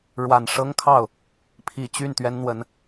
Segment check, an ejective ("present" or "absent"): absent